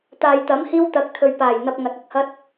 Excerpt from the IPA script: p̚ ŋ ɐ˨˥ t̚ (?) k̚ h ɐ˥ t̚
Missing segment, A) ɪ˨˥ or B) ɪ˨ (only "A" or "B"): B